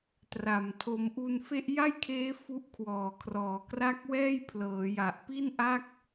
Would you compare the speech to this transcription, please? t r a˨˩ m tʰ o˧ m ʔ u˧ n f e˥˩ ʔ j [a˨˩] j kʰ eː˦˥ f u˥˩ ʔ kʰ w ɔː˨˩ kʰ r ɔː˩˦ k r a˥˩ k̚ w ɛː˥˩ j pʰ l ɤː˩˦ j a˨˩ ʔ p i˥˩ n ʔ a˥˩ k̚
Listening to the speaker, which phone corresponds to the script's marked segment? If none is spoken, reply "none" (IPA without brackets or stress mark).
a˥˩